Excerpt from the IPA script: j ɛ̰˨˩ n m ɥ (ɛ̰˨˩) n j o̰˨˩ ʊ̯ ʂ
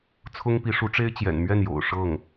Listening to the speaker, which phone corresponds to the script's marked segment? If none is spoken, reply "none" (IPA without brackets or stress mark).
ɛ˥˩